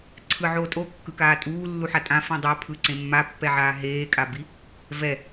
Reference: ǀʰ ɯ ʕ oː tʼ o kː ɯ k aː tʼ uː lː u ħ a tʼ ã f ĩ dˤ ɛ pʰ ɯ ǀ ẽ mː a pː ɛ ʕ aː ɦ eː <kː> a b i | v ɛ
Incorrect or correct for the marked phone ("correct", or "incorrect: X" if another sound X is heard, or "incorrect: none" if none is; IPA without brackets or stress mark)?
incorrect: kʼ